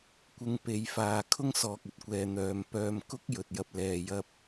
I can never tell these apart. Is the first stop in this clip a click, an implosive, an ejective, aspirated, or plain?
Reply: plain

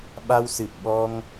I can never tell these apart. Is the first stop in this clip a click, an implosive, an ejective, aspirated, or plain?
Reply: implosive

